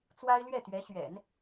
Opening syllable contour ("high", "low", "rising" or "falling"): high